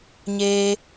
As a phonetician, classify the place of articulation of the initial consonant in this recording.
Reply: palatal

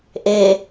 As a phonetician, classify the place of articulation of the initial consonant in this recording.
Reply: glottal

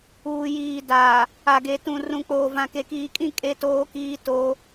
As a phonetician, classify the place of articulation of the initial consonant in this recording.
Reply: palatal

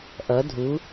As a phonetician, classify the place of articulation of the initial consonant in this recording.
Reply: glottal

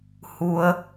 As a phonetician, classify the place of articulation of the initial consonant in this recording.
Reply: glottal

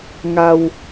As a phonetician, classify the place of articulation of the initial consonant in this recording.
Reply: velar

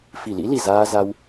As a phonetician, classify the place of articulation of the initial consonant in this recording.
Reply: labial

